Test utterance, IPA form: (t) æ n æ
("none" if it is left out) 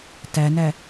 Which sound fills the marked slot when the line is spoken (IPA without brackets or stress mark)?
t